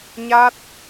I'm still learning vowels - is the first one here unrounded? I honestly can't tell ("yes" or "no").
yes